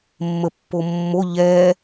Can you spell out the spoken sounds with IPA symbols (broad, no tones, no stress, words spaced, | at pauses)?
mːəpːomːo ʎɛ